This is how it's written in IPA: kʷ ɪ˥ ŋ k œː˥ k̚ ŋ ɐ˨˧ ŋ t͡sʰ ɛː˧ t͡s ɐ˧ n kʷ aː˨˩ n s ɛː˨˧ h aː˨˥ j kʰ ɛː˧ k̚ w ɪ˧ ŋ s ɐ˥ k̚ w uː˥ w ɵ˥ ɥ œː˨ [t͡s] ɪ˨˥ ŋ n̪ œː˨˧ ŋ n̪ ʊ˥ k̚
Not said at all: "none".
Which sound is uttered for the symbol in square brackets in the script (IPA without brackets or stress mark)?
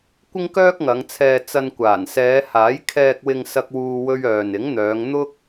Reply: n